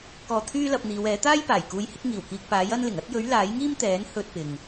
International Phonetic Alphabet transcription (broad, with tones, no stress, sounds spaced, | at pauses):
k ɔː˧ t̪ʰ yː˥ l ɐ˧ p̚ n̪ iː˨˧ w ɛː˨˥ t̪ aː˥ j p aː˨˩ j k uː˧ j h ɪ˨˥ k̚ ŋ iː˨˩ w k iː˧ k̚ p aː˨˥ j ɐ˥ n l ɪ˨˩ ŋ ɐ˥ t̚ j ɵ˨˥ ɥ l aː˨˥ j ŋ iː˥ m t̪ ɛː˨˥ n h ɵ˧ t̚ p ɪ˧ ŋ